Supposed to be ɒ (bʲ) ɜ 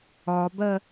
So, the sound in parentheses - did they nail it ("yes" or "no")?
no